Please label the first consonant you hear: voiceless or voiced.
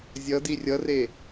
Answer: voiced